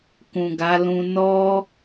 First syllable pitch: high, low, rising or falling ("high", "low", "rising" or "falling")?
low